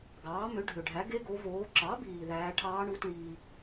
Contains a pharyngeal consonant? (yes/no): no